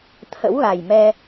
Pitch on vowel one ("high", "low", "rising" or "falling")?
rising